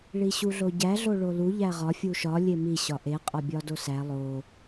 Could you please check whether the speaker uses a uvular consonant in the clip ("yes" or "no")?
yes